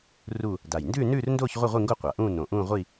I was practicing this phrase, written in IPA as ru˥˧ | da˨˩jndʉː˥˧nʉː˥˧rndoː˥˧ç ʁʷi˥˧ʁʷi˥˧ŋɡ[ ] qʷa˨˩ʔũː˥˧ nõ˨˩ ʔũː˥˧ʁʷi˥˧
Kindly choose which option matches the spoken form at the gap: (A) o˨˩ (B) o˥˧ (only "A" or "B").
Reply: B